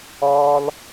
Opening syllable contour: high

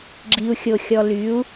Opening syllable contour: low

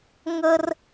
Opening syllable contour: high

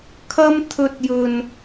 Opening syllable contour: high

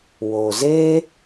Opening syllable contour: low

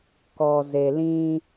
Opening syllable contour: low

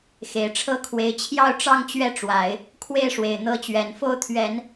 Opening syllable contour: low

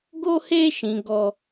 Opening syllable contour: high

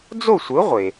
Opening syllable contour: falling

